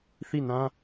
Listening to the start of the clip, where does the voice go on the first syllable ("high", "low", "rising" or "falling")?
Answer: falling